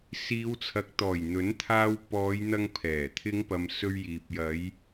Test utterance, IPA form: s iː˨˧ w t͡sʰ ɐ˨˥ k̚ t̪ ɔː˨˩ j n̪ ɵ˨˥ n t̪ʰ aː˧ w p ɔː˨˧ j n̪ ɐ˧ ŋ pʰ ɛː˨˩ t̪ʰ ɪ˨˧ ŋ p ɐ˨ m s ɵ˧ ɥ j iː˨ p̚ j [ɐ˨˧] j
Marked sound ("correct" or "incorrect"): correct